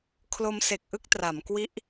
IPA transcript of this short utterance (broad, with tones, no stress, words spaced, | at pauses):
kʰlo˧mse˨˩k̚ʔɯ˦˥k̚ tra˩˦mkwi˦˥ʔ